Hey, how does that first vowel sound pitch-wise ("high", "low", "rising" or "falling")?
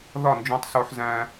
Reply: falling